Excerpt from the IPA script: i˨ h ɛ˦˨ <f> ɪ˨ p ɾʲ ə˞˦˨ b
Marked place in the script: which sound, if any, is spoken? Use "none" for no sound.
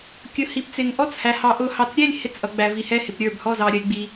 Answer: h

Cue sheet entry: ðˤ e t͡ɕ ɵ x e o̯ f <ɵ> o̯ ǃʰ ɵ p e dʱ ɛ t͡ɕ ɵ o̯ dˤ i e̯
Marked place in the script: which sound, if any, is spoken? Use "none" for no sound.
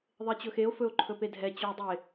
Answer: ɵ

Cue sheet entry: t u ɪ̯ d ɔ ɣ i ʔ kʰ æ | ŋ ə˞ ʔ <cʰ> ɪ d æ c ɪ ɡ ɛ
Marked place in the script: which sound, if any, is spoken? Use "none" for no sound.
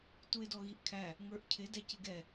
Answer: cʰ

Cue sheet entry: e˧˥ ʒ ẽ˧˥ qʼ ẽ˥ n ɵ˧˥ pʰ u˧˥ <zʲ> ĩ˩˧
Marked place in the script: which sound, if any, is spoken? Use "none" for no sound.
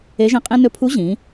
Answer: ʑ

